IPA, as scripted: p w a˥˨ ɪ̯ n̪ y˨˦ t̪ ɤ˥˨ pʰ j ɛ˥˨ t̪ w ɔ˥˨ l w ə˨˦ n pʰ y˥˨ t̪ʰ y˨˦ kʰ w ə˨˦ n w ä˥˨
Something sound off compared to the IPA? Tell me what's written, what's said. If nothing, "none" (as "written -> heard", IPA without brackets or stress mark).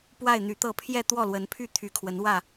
none